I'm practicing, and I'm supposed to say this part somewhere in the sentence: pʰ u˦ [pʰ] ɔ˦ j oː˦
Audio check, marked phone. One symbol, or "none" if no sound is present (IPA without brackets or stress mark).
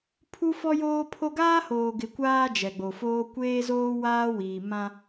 f